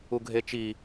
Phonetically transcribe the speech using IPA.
u ɡʱ e t͡ʃ i

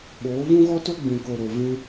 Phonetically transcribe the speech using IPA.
ɓ oː˨˦ v ũ˦ ɣ ɔ˦ t o˦ ɡ͡b ĩ˨ k o˨ ɾ o˨ v ĩ˧

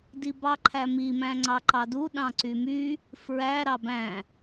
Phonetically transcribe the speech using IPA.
d i b ɑ ǃʰ æ m i m æ̃ ŋ͡ǀ ɑ ǃ ɑ d u ɗ ɑ̃ ǀ y m y | f ɹ æ ɾ ɑ b æ̃

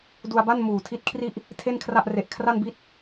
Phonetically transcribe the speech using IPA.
d u˧ a̯ b a˥˩ n m uː˨˩ tʰ i˦˥ t̚ kʰ r i˥˩ ʔ | tʰ e˥˩ n kʰ r a˥˩ ʔ r e˨˩ ʔ kʰ r a˥˩ n b i˥˩ t̚

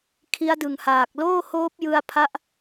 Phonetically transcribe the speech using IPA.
kʰ i˦˥ a̯ d ɯ˨˩ ŋ h aː˨˩ k̚ l oː˥˩ h oː˦˥ p̚ j ɯ˧ a̯ pʰ a˦˥ ʔ

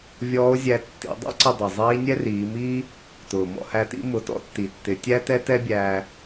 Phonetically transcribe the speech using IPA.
vʲ ɔː˧˥ o̯ zʲ æ˧ tː ḭ˩˧ dˤ ɛ̰˥ ǀ ɪ˧ dˤ ɪ˩ zˤ iː˧˥ nʲ ɛ˥ r iː˩˧ m iː˥ | t ʊː˩ m ɔ̰˧ h æ˧ t ḭ˧˥ m ʊ˩˧ t ɔ̰˥ tː i˩ tː ɪ˩˧ tʲ æ˥ t ɛ˥ t ɛ˥ bʲ æː˧

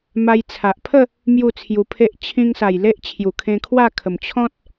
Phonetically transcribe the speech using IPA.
m a˧ j t͡sʰ a˨ ʔ pʰ ə˥˧ | m j u˥˧ t͡sʰ j u˧ pʰ e˦ ʔ t͡ɕʰ ĩ˧ ŋ s a˨˩ j l e˦ ʔ t͡ɕʰ j u˨˩ kʰ ẽ˧ kʰ w a˥˧ kʰ ə˨˩ m t͡ɕʰ ɔ̃˦ t̚

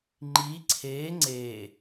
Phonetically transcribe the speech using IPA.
ŋ͡ǃ i ǀʰ e ŋ͡ǀ e

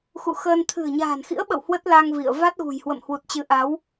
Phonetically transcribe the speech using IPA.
x ṵ˧˨ x əː˧ n t̪ʰ ɨ̤˨˩ ə̯ ɲ a̤ː˨˩ n x ḭ˧˥ ə̯ ɓ ə̰˧˨ w h w ə˦˥ t̚ l a˧ ŋ v ḭ˧˨ ə̯ v a˦˥ t̚ ɣ ṳ˨˩ j h w ə̰˧˨ m h w u˨˩ t̚ t͡ɕ ɨ˨˦ ʔ a˨˦ w

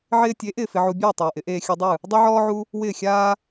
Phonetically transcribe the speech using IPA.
ʕ ɪː˧ tʲ e˩˥ ʔ ɪː˥˩ f ɪ˧ ʕ u˧ bʲ uː˥˩ tˤ uː˩ ʔ ɪ˩˥ ʔ eː˧ xʲ u˧ dˤ ɯ˥˩ | dˤ ɯ˥ ʕ ɔː˥ ʕ u˥ | w ɪː˥˩ xʲ aː˥

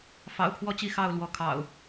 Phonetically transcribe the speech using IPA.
f ɑ̰˨˩ ʊ̯ pʰ w ɔ˥˨ t͡ɕ i˥˨ x ɑ˥˨ ʊ̯ l w ɔ˨˦ kʰ ɑ̰˨˩ ʊ̯

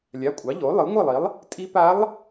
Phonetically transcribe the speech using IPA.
lʲ a˩˧˩ kʷʼ ɑ˩˥ ʎ o˩˥ lˠ ɯ˩˥ ŋʷ ɯ˥˩ lˠ i˩˥ lˠ | tʼ i˧˥ p a˧˥ lˠ

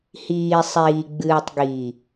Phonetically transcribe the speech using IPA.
h iː˨ sˤ iː˨ ɡ͡b ɨː˨ tˤ ɡ i˨

